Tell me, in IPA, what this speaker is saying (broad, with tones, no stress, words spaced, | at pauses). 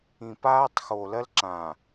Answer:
ĩ˨paː˦tˤxo˨ lɜ˦lǁã˨